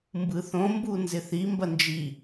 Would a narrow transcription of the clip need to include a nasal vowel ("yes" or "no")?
yes